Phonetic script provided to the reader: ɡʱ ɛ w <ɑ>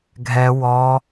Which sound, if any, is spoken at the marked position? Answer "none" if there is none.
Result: ɔ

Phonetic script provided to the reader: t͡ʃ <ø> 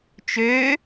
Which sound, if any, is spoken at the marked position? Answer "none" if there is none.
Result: ø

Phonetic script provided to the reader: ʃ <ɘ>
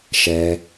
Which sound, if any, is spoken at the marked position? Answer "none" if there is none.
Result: ɛ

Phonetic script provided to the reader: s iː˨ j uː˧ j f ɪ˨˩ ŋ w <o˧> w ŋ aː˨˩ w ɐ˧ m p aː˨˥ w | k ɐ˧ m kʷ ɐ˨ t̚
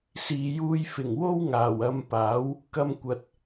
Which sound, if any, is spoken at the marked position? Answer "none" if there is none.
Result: o˥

